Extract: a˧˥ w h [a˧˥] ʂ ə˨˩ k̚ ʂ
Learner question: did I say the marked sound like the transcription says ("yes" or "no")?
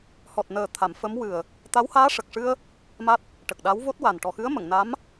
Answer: no